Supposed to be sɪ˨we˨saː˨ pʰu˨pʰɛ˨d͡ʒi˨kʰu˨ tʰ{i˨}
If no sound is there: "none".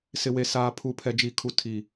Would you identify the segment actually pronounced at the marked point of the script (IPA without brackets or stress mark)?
i˨